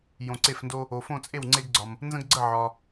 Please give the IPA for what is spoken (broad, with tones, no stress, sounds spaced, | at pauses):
j õ˨ ǀ e˦˨ f n d o˦ | o˨ f õ˦˨ t͡sʼ e˦˨ w ŋ͡ǀ e˦ ɡ ɡ͡ǀ ɒ˨ m | n z ə̃˦ ɡ ɡ͡ǀ ə˦˨ ʕ ɒ˨